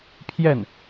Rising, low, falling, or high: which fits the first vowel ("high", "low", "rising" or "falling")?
falling